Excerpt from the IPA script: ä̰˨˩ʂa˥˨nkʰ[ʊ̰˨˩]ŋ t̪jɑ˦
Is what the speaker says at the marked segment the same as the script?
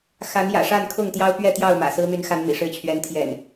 no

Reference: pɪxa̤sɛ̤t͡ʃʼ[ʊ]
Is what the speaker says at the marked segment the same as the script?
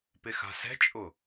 yes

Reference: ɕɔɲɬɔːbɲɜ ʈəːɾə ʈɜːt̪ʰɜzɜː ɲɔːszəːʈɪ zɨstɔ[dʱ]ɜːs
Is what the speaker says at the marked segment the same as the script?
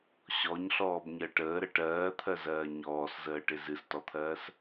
no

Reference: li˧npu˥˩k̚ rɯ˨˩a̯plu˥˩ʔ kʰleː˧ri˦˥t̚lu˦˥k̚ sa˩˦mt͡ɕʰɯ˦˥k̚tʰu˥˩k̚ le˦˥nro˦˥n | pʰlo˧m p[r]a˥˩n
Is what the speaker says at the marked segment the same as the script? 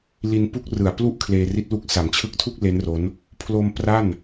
yes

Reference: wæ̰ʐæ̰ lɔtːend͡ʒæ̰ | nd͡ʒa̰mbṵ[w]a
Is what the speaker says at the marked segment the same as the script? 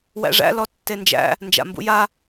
no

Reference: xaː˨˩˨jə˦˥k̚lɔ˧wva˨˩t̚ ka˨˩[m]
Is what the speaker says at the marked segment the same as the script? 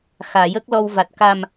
yes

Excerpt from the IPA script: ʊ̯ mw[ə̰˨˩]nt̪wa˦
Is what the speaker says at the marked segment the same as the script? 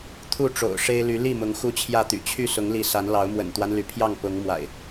yes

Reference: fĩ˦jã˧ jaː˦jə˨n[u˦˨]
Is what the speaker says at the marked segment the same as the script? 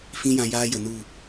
yes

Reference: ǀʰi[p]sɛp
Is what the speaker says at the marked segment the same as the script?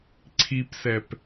yes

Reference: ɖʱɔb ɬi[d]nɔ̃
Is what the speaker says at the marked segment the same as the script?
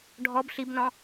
no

